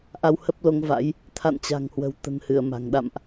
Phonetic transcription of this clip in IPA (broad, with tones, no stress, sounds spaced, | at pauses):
ʔ a˧ w h ə˦˥ p̚ l o˨˦ ŋ v a̰˧˥ j | t̪ʰ a̰˧˨ n t͡ɕ a̤˨˩ ŋ h w ə̤˨˩ w t̪ ə̤˨˩ n h ɨ˧˩ ə̯ m a̤˨˩ ŋ ɗ a̰˧˨ m ʔ